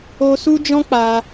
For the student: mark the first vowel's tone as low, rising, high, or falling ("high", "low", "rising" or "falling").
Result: high